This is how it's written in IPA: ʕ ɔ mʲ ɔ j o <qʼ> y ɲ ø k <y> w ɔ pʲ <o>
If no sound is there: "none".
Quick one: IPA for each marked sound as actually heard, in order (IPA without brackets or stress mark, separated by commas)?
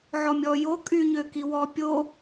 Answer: kʼ, i, o